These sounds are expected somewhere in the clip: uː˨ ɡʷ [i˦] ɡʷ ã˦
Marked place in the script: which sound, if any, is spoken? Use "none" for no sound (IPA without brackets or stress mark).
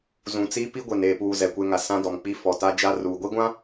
i˦